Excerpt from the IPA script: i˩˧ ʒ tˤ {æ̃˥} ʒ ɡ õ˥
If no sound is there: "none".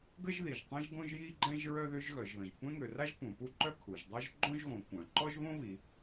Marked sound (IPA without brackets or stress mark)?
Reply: ɛ̃˥